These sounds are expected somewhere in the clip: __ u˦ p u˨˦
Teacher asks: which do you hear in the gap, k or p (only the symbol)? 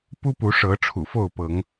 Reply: p